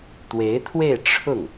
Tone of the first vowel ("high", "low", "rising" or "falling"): rising